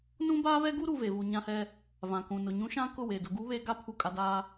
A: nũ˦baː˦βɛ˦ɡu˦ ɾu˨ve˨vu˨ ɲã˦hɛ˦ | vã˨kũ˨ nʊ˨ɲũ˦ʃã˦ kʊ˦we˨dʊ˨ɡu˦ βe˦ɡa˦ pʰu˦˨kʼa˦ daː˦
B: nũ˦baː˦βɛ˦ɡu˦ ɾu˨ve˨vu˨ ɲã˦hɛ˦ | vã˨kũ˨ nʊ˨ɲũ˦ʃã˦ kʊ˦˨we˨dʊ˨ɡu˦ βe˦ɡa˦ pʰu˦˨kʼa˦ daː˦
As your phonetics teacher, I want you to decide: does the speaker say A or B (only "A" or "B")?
B